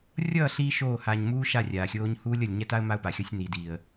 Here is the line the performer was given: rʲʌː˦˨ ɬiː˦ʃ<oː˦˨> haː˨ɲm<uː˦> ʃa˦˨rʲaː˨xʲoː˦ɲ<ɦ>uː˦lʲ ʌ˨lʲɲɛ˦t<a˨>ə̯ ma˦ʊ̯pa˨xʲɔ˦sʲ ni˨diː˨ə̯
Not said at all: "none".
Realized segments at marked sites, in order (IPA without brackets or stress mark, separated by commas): oː˦˨, uː˦, h, a˦